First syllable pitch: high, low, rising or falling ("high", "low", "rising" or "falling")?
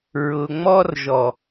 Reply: low